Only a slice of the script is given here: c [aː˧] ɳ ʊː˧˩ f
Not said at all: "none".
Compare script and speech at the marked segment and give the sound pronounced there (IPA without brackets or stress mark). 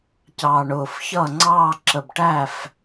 ɑː˧